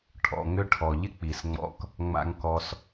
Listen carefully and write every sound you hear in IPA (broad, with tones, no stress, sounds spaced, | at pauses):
ʈʰ ɔ̰˨ ŋ ʏ˧ ʈʰ ɔ˨ ʎ ɪ˦ k͡p i˨ s ŋ͡m ɔ̰˧ k | ŋ͡m a̰˧ ŋ k ɔ˧ s